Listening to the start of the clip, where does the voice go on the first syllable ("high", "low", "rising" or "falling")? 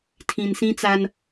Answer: low